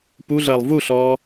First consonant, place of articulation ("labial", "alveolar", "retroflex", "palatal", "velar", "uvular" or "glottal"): labial